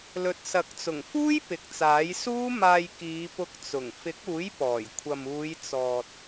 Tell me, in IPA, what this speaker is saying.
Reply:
lɵ˨t̚sɐ˨˥k̚t͡sʊ˨˩ŋfuː˥j pɪ˨k̚t͡saː˨˥j suː˥ maː˧jkiː˨˧pʊ˧k̚ t͡sʊ˨˩ŋ fɪ˨˥k̚uː˨˥j pɔː˨˩j kʷʰɐ˨m uː˨˧jt͡sɔː˨t̚

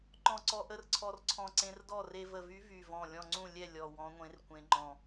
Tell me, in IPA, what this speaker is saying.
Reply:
ǃɔ̃˧˩ǀɔ˧ʔə˧˥rǀʰɔ˧r ǀʰɔ̃˧˩ǀẽ˧rdɔ˥˩ re˧və˧˩vy˧˥ vy˧˩vɔ̃˧˩ lʲɔ̃˧˩ŋ͡ǀũ˥˩lʲɛ˥˩ lʲɔ˧˩wɔ̃˧˥ŋʷẽ˧˥r kʷẽ˧˥ŋ͡ǃɔ̃˧˩

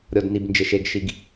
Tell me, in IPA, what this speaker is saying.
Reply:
ɾʲɔ˨dni˨bnd͡ʒɪ˨ ʃe˨ɡ ʃi˨ɡ

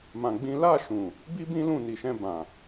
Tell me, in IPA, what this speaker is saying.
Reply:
mã˧ɡ͡bĩ˦ la˦˨ʃũ˨ | bi˦ bĩ˦lũ˦˨ni˨ʃɛ̃˧ bã˨

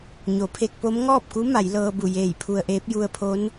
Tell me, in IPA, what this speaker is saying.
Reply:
ɲo˩˧pʰe˧k̚po˧˥m ŋɔː˥˨p̚ku˧˥ ma˩˧jlɤː˧bu˧˩jeː˧˩j pʰu˧ə̯ʔeː˧˥p̚ ju˧ə̯pʰo˧˥n

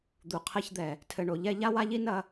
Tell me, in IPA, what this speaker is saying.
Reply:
d̪u˨qʰɛ˦çd̪ɛ˨ | tʰɘ˨ɳo˨ʎɛ˦ ʎa˦wa˦ʎi˦ nɐ˦

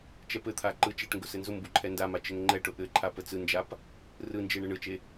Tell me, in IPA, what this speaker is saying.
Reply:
t͡ʃɛpɘt̪ʰa ǃɯ t͡ʃɛʈŋɡʊ sɘnzʊmbu ǃʰɛndama t͡ʃɘŋŋ͡ǃɛʈʊ ʔɘǃʰa pət͡sɯnd͡ʒap | rɯnd͡ʒe ɳɘɳɯt͡ʃe

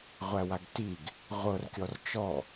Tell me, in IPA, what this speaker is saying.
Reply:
ʁʷæwaɡtiɡ | ʁʷɤrkʲɔr t͡ʃɔ

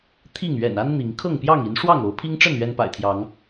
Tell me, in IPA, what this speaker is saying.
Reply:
t̪ʰi˥˨ŋ ɥɛ̰˨˩na˦n n̪i˨˦ŋ kʰɤ˥˨ŋpjɑ˥˨ŋi˨˦n ʂwɑ˥˨ŋo˨˦ʊ̯pʰi˦ŋʈ͡ʂə˥˨n ɥɛ˦npa̰˨˩ɪ̯t̪ʰjɑ˨˦ŋ

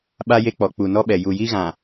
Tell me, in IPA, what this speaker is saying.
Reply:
ɓa˦je˦k͡pɔ˨ k͡pu˨nɔ˦ɓɛ˨ ju˨ji˦ɣã˨

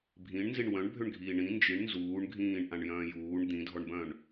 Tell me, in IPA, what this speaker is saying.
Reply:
bʱĩɳnziɳ wœ̃ɳbʱʏɳɡʱiː ɳĩ nd͡ʒiɳ nzuːɳ ɡʱĩːɳʔãɳjœ̃ː juːɳ d̪ĩdʱɔɳbœ̃ɳ

